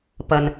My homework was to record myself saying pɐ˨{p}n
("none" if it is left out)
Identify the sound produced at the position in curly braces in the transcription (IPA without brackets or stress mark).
none